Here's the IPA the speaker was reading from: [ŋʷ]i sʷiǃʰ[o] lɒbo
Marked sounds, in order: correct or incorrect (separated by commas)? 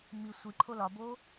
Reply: incorrect, correct